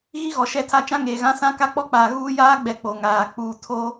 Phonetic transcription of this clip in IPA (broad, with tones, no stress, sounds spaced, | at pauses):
ɣ i˦ ɣ ɔ˨ ʃ ɛ˦ tʰ a˦ t͡ʃ ã˦ ŋ eː˨ ɣ ã˦ s ã˦ k a˦ k͡p ɔ˦ k͡p aː˨ ɣ uː˦ j aː˦ ɡ͡b ɛ˨ k͡p o˨ ŋ aː˨ k͡p uː˨ tʰ o˦